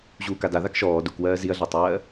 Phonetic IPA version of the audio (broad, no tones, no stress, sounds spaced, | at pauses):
ʑ uː k a d a ð a k ʃ ɔː d u k w ɜː z i ɐ̯ ɮ a tˤ ɜː